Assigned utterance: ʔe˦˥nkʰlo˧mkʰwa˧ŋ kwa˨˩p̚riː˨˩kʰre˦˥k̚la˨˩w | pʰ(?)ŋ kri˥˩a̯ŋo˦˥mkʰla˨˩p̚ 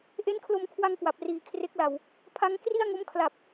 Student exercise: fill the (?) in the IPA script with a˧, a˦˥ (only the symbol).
a˦˥